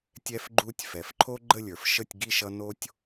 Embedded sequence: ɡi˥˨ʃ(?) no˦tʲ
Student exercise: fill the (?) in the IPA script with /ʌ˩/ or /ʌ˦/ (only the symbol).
ʌ˦